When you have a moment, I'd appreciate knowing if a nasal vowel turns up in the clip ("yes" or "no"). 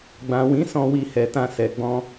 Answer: yes